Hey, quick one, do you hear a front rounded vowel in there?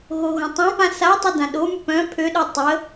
yes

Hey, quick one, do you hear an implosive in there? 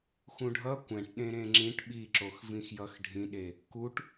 yes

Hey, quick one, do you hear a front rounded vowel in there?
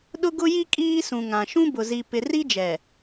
no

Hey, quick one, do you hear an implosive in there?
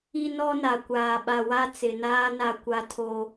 yes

